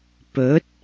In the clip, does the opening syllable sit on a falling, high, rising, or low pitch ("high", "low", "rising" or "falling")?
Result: rising